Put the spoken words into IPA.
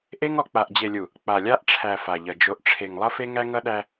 ʔ e˦ ŋ ɔ˨ k͡p a˨ ʔ d͡ʑ e˨ lʲ u˨ | k͡p a˨ lʲ a˦ ʔ ʈ͡ʂʰ æ˨ f a˨ ʎ ʌ˨ d͡ʒ o˨ ʔ ʈ͡ʂʰ e˨ ŋ lˠ ʌ˦ f e˦ ŋ æ˦ ŋ ʌ˦ ɗ æ˦

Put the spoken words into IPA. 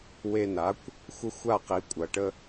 w e˧ n a˩˥ kʷ | xʷ ə˥ xʷ a˥˩ q i˩˥ kʷʼ ɐ˩ ʈ ə˧

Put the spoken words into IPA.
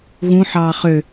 ɣ ũ ħ ɑː χ ø

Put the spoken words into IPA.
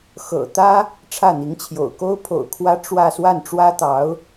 x ɤ̰˨˩ t̪ ä˥ | ʈ͡ʂʰ ä˥˩ n̪ i˧˥ ŋ t͡ɕʰ j o̰˨˩ ʊ̯ k o˥ ʊ̯ pʰ o̰˨˩ ʊ̯ kʰ w ä˥ ʈ͡ʂ w ä˥˧ s w a˥˩ n ʈ͡ʂ w ä˥ t̪ ɑ˧˥ ʊ̯

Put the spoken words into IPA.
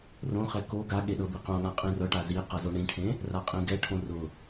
r õ χ ɛ k o ɡ a ɠ e ɗ ɤ b i q õ ɠ ã qʼ ĩ r ɤ ʈ a z i q ɤ z o ɳ ĩ ʈʰ ẽ | r a qʼ ĩ ɡ ɛ ʈʰ õ r ʊ

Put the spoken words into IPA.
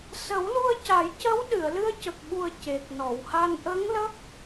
s ə˨˩˦ w l u˧ ə̯ c a˨˩˦ j c ə˧˥ w ɗ ɨ˨˩˨ ə̯ l ɨ˧ ə̯ c ə˨˩ k̚ ɓ u˨˩ ə̯ c e˨˩ t̚ n ɔ˨˩˨ w h a˧ n ʔ ə˧˥ ŋ l ə˦˥ k̚

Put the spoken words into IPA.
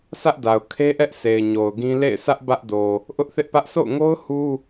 sʰ ä˦ ʔ d a˨ ʊ̯ kʰ e˦ ʔ ɛ˦ ʔ s e˨ ɪ̯ ɲ o˨ ʊ̯ ɡ ĩ˦ l ḛ˦˨ ɪ̯ sʰ ä˦ ʔ b ä˦ ʔ d o˨ | ʔ ʊ˦ ʔ θ ɪ˦ ʔ p ä˦ ʔ s o̰˦˨ ʊ̯ ŋ o˦ ʊ̯ h u˦

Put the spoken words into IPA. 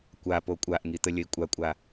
kʷ a p o kʷʼ a ʔ ŋ i t̪ ə lʲ ə i̯ kʷʼ a kʷʼ a

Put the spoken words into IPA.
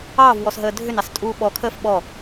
ɑː v w ɔ s ɦ əː dʱ ʏ n ɑ s tʼ uː ɓ ɔ kʰ əː f ɓ ɔ

